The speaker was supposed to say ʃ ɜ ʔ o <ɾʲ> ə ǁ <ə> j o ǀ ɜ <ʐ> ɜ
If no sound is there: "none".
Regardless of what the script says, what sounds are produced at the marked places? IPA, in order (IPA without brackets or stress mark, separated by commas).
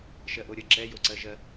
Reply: ɾʲ, ɛ, ʒ